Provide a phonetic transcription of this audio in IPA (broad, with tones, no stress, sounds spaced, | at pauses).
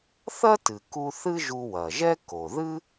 θ ɐ˥ t ɨ˩ k u˧ θ ɨ˥ ʒ u˧ w ɐ˩ ʒ ɛ˥ k o˩ ð ɨ˥